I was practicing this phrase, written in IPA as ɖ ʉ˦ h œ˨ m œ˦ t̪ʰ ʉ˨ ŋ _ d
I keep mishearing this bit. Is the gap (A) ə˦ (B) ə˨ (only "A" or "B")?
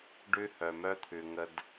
A